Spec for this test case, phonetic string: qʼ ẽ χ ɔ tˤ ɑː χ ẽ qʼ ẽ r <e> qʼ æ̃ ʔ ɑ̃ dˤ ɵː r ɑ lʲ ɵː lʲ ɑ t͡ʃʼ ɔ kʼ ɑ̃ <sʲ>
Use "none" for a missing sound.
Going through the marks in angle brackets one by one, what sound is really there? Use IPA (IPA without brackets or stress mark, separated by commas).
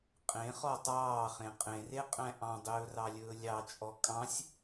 e, sʲ